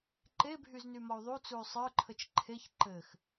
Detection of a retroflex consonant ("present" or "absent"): absent